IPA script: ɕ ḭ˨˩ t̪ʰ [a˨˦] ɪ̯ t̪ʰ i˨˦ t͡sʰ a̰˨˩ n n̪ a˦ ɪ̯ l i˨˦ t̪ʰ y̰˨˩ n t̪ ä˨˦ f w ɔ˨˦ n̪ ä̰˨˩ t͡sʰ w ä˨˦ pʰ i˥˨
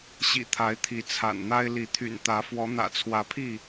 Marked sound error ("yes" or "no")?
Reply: no